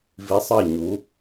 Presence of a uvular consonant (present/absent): absent